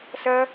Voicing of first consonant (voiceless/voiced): voiceless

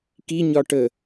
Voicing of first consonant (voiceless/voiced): voiceless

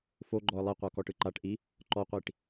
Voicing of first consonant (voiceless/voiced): voiceless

